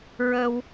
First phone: ɹ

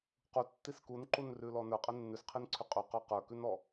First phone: q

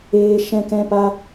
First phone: eː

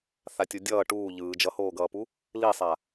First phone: θ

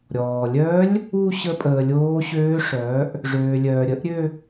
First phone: ɾʲ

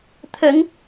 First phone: t̪ʰ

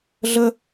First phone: ɮ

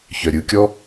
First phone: ç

